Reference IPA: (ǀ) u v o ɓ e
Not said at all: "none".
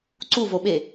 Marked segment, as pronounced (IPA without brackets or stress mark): ǀ